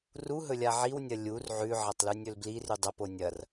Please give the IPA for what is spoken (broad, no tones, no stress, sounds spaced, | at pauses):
r u ɦ ɵ lʲ a ʕ i w nʲ ɐ lʲ u r ʕ ʉ ʕ ɐ tˤ l ʉ nʲ ɵ l b l i r ʉ dˤ ɐ p o nʲ ɐ r